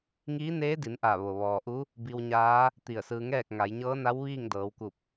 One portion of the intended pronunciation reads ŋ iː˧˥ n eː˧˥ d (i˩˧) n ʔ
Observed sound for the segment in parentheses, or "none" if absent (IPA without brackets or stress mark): i˩˧